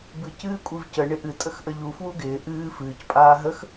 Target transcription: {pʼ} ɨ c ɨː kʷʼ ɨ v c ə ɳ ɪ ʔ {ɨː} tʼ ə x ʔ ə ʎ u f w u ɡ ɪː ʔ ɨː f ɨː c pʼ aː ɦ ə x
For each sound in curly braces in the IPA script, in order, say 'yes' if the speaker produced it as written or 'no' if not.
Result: no, no

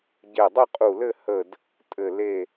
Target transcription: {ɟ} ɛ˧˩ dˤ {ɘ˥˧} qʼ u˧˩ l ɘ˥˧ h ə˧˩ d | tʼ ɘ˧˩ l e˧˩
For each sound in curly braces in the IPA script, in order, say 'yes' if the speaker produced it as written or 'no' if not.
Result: yes, yes

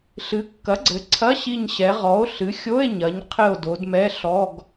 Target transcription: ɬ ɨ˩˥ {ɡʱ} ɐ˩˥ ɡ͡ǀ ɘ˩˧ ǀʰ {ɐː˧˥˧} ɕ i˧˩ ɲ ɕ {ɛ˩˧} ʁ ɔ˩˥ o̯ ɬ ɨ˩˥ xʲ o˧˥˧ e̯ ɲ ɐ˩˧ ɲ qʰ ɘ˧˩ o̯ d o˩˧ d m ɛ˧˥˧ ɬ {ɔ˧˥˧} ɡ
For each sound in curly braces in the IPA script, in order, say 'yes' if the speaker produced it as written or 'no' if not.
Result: no, no, yes, yes

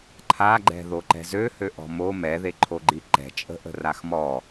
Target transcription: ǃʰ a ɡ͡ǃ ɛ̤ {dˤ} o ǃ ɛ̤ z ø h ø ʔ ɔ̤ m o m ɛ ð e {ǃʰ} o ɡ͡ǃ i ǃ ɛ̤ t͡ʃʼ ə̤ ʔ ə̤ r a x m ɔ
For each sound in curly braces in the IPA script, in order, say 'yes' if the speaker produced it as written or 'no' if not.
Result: no, yes

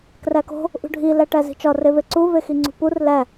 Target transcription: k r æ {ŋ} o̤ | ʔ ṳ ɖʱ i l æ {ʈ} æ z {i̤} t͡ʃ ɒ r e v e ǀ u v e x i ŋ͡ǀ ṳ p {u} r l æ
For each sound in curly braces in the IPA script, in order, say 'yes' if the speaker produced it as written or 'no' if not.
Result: no, yes, yes, yes

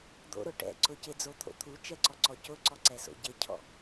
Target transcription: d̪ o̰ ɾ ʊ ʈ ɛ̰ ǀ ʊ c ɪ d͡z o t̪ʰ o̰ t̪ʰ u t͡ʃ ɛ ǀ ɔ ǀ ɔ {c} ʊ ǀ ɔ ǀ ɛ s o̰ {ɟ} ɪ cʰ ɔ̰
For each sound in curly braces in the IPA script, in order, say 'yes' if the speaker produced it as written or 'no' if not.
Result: yes, yes

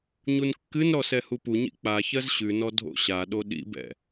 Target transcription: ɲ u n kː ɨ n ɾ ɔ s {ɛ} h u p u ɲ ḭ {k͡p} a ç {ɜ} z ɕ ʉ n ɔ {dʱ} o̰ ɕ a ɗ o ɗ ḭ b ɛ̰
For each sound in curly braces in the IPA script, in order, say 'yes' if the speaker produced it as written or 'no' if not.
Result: yes, yes, yes, yes

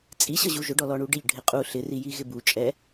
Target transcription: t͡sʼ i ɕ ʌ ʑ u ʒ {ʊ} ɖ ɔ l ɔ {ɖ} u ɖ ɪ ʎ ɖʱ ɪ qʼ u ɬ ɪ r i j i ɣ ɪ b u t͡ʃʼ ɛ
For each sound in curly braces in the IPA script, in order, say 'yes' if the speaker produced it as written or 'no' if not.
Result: yes, no

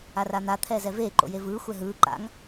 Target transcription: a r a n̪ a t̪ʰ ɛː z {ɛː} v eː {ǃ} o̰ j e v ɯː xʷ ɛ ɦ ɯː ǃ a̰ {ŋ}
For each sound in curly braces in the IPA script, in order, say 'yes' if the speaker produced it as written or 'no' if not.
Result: no, yes, yes

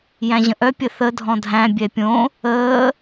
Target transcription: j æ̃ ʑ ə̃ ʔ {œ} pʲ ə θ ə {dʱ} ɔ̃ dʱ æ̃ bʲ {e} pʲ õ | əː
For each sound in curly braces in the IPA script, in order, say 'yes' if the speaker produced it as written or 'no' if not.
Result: yes, yes, no

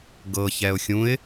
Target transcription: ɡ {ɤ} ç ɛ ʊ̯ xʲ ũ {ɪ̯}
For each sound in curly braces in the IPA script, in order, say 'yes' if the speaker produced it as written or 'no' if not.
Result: yes, yes

